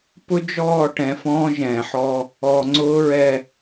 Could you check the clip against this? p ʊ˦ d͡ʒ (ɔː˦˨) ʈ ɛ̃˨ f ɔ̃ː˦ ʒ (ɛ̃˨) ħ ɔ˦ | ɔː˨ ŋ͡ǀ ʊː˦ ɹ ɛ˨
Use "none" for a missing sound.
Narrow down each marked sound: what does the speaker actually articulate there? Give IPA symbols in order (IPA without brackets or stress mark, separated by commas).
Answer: ɔː˦˨, ɛ̃ː˨